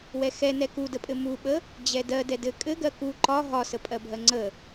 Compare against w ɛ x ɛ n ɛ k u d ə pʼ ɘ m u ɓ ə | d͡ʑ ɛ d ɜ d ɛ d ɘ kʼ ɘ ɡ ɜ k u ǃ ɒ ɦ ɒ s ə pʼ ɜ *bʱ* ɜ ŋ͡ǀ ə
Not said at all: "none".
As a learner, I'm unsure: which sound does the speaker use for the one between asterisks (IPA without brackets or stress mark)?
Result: bʱ